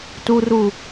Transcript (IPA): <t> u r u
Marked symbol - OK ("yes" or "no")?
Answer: yes